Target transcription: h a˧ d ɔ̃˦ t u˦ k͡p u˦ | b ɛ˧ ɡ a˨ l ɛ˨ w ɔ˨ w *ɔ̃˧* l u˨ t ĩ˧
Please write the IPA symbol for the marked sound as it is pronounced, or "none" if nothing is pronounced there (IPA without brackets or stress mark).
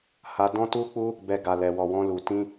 ɔ̃˧